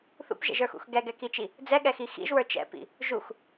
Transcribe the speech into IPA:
θṵpʒɛ̰ʒə˞xṵx ɡɛɡɛkit͡ʃi | d͡zɛɠɛxi xḭʒwə˞ t͡ʃɛ̰pḭ | ʒux

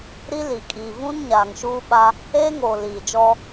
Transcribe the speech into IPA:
ɾi˦li˨ kʼiː˨vũ˦n ɲaː˨ŋʃuː˦ɓa˦ | eː˦ŋoː˨ liː˨d͡ʒɔ˦

